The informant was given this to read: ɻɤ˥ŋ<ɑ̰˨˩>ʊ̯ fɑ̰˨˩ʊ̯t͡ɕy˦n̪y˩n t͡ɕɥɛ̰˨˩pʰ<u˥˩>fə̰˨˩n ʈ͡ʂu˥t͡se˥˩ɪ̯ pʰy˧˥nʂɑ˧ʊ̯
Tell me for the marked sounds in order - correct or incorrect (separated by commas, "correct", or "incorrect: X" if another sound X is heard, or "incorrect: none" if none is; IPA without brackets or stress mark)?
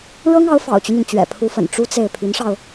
incorrect: ɑ˧˥, incorrect: u˧˥